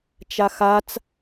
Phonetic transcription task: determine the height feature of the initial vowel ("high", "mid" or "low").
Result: low